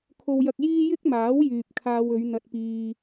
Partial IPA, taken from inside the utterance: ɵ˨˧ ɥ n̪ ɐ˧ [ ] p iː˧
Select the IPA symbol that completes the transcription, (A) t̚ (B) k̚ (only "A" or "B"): A